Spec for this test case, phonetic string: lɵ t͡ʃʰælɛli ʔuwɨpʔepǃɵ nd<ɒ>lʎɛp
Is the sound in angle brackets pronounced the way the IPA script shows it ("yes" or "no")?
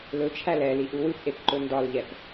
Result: yes